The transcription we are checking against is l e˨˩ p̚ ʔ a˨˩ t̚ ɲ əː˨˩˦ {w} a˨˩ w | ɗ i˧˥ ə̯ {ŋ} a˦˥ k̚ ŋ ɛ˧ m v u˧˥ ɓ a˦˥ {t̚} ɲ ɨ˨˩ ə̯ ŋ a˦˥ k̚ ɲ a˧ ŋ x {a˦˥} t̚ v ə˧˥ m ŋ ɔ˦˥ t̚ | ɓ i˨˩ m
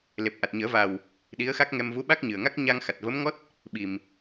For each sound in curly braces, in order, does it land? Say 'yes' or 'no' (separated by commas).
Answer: no, no, no, no